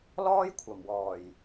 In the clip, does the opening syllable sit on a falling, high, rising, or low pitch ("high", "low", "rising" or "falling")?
high